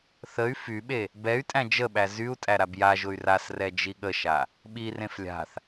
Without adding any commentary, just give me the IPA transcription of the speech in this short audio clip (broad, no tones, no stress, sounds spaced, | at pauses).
θ ə y̯ f y ɓ e | b ɛ y̯ tʼ æ̃ d͡ʒ ə ɓ æ z y u̯ tʼ æ ɾ a b j a ʒ ʊ y̯ r a s r ɛ d͡ʒ i ɠ ə ʃ a | ɓ i r ẽ f lʲ a̤ θ